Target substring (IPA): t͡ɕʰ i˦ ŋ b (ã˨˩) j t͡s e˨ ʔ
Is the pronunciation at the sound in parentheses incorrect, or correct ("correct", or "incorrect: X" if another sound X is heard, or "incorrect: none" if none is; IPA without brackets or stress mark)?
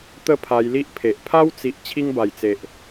incorrect: a˨˩